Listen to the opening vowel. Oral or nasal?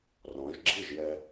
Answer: nasal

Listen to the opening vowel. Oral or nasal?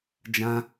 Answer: nasal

